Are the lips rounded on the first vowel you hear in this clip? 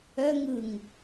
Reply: yes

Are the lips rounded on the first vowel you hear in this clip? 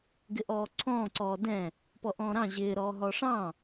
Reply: no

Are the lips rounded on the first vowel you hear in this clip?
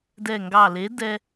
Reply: no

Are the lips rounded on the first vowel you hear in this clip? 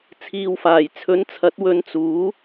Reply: no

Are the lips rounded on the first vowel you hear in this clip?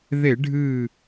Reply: no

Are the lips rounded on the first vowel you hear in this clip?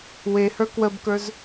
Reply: no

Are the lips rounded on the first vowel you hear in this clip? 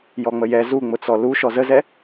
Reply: yes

